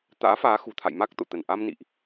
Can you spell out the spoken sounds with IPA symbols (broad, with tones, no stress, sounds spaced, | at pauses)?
t̪ a̰ː˧˥ f aː˨˦ x ṳ˨˩ t̪ʰ a̰˧˨ j m a˦˥ k̚ t̪ o̰˧˨ t̪ ə˧˩ n ʔ a˧ m n ḭ˧˨ ʔ